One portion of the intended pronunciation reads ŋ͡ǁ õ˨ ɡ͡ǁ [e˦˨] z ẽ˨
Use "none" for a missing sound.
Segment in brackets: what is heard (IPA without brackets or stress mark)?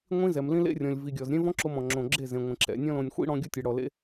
e˦˨